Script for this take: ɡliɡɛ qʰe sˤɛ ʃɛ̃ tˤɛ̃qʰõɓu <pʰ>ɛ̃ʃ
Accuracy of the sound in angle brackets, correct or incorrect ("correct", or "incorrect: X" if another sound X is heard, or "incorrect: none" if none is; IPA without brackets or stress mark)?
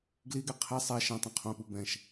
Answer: incorrect: b